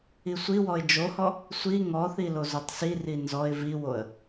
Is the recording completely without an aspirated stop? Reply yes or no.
yes